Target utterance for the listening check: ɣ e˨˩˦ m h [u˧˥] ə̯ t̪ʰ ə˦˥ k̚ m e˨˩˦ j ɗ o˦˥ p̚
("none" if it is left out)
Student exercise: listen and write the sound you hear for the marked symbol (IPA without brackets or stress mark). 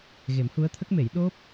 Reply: u˧˥